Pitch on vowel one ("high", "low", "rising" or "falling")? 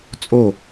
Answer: falling